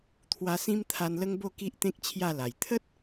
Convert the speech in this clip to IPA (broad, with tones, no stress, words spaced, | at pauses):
t̪ʰwa˧ sĩ˧m t̪ʰa˧nlə˦ŋbo˥˧ ki˦ʔt̪ẽ˦k̚ t͡ɕʰja˥˧la˨˩j t̪ʰə˦t̚